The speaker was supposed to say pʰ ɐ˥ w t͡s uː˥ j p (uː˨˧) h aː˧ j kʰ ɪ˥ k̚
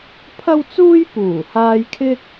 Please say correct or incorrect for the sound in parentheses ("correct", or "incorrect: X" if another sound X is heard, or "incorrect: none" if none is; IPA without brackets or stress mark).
incorrect: uː˨˩